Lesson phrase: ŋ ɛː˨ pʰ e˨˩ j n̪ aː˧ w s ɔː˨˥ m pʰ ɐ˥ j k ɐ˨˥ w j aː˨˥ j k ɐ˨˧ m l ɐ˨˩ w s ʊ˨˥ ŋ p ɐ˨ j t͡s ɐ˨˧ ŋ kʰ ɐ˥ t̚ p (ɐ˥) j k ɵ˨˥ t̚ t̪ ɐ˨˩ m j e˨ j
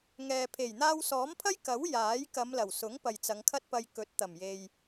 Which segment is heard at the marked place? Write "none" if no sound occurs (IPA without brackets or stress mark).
ɐ˧